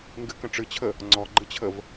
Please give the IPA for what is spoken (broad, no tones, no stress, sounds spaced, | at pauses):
ŋ ɡ ɨ k ə̃ ʈ͡ʂ ɨ t͡ɕʰ ə | ŋ͡ǀ ɔ ɡ͡ǃ ɨ t͡ɕʰ ə v